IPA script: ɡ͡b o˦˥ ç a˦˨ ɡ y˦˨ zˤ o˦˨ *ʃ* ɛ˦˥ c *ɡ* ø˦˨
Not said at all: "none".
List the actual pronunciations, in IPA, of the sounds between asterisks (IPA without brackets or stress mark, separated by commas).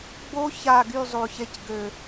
ç, ɡ